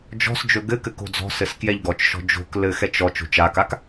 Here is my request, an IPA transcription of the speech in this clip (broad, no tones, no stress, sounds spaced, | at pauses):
d͡ʒ ɔ̤ s d͡ʒ ɵ ɡ ɘ k ɘ k o̤ d͡z ɔ̤ s ɘ s k j ɛ ʎ ɡ ɔ t͡ʃ ʃ ɔ̤ d͡ʒ o̤ k l ɘ x ɛ t͡ʃ ɔ t͡ʃ o̤ t͡ʃ a k a k